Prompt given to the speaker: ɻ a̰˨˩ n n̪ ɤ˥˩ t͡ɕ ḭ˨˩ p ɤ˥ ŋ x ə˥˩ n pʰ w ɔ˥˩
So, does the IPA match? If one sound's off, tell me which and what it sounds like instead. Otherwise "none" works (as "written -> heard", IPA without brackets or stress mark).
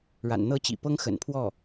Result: ə˥˩ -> ə̰˨˩